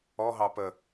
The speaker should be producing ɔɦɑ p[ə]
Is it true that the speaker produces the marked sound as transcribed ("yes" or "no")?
yes